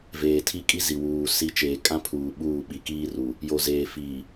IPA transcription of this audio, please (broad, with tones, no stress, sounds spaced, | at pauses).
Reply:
v eː˨ tʰ i˦ kʼ i˦ z i˨ w uː˨ s i˨˦ t͡ʃ eː˨ kʼ ã˦ pʰ uː˨ ɓ uː˦˨ ɓ i˨ k iː˦ r u˨ | j o˨ z eː˨ f iː˨